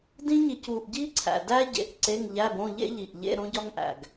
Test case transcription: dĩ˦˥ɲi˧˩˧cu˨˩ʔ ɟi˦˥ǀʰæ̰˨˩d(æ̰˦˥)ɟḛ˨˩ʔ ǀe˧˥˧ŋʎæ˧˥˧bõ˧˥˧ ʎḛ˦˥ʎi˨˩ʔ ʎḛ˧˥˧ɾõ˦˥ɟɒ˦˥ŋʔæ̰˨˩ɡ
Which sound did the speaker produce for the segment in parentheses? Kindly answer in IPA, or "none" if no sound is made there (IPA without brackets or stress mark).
æ˦˥